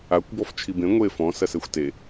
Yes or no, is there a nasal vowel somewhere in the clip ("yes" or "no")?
yes